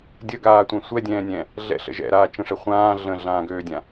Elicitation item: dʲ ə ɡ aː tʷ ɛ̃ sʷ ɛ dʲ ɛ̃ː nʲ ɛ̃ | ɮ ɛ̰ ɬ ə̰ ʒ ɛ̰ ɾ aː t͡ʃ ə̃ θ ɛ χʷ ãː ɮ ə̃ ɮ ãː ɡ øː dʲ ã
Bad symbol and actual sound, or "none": θ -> ʂ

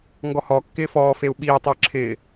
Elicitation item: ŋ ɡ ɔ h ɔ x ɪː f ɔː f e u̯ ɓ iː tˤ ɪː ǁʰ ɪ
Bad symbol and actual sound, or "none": x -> kː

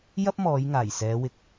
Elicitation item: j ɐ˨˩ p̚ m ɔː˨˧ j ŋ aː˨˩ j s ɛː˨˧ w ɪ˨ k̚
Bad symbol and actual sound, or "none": ɐ˨˩ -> ɐ˥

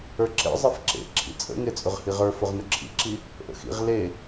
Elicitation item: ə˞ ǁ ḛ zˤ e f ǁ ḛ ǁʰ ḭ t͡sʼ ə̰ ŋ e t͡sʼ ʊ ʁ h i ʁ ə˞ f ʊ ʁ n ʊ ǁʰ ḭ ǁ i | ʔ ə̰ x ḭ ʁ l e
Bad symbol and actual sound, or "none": none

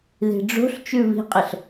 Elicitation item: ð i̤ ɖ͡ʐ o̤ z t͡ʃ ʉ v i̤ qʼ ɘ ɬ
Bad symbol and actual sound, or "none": z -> ɬ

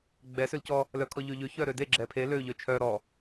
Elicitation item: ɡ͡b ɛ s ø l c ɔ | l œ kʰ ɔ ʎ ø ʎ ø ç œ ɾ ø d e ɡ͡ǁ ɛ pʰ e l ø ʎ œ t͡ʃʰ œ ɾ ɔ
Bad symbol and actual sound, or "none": none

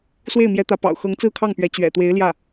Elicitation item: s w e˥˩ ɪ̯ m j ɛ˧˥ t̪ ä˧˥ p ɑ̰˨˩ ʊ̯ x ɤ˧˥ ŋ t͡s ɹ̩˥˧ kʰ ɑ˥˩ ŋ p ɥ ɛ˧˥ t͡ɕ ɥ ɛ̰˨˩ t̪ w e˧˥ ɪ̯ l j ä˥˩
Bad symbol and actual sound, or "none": none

